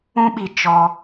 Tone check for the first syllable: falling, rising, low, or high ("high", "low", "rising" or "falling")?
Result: high